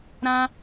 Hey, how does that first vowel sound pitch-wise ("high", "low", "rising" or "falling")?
high